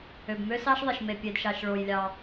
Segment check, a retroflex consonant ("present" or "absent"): present